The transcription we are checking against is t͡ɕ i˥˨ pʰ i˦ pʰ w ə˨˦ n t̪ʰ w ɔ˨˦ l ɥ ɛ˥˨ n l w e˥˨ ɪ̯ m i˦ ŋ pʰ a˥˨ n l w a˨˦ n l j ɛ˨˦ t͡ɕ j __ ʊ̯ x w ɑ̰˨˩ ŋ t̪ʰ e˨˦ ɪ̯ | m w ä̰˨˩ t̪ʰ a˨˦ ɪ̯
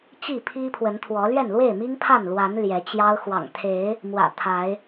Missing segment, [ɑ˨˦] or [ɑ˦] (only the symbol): ɑ˦